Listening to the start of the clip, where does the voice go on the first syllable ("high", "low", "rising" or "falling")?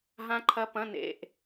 rising